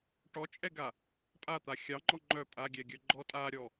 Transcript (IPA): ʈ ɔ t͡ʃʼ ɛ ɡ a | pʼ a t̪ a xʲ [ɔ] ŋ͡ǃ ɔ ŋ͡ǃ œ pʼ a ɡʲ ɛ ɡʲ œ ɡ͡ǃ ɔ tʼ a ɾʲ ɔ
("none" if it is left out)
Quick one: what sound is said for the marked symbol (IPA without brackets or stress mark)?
ɑ